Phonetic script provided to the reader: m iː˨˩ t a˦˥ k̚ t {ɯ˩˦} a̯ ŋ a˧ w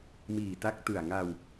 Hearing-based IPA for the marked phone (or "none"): ɯ˨˩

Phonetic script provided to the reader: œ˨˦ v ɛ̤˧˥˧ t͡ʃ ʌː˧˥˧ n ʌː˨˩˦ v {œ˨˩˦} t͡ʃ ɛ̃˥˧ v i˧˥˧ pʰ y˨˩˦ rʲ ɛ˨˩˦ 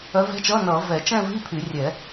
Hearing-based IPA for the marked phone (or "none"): ɛ˨˩˦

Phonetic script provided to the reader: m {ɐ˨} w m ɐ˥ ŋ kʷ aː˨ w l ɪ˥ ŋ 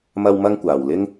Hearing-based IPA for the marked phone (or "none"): ɐ˥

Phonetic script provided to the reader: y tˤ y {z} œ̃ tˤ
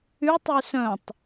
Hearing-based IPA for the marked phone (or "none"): s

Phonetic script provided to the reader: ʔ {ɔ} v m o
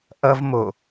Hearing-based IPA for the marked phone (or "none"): ʌ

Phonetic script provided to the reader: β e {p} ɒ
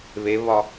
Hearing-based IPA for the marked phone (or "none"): β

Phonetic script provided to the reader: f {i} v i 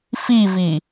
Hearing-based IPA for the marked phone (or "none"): i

